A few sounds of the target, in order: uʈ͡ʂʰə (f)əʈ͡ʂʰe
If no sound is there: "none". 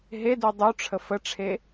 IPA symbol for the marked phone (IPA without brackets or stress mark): f